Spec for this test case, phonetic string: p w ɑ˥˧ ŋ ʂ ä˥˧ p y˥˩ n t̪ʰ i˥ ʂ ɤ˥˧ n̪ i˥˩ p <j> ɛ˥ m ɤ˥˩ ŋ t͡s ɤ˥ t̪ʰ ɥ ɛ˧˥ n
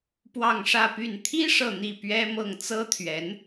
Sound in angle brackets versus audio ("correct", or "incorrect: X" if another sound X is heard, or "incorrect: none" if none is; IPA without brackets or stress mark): incorrect: ɥ